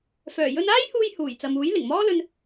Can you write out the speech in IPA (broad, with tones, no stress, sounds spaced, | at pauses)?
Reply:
f œː˨˩ j ɵ˧ n aː˥ j h uː˧ j h uː˨˩ j t͡s ɐ˨ m uː˨˥ j l ɪ˨˩ ŋ m ɔː˥ l ɵ˧ n